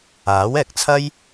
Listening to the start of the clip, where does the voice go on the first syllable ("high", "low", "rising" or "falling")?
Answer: rising